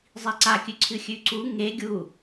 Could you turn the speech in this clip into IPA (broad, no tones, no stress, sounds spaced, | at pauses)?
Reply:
zˤ i ǀ a kʲ ʉ ǀʰ ɨ xʲ ʉ ǀ u ŋ e ɡʲ u